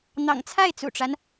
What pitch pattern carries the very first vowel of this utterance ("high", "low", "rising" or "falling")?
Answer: low